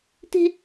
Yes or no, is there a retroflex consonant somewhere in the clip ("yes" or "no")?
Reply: no